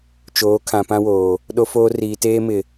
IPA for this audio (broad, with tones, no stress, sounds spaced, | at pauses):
t͡ʃ oː˨˦ kʰ ã˨ p ã˦ w oː˨ | ɗ o˦ f oː˦ r iː˨ t eː˦ m ɪ˨